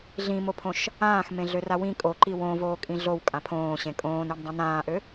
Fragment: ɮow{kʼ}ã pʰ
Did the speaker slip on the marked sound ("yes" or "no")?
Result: no